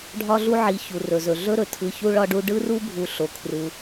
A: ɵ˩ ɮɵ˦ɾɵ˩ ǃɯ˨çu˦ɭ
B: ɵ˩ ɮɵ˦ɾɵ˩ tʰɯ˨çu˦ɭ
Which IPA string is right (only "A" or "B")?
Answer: B